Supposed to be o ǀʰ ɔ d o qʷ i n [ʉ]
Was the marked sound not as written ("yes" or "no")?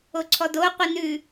no